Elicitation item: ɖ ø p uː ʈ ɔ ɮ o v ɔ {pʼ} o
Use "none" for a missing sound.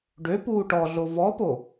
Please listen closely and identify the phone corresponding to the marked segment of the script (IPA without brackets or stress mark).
p